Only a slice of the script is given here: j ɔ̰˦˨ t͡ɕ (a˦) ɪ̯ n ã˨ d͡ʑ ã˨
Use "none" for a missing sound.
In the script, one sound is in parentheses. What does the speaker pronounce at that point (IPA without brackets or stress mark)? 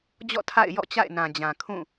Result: a̰˦˨